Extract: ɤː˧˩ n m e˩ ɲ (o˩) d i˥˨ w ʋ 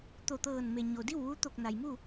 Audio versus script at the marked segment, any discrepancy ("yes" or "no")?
no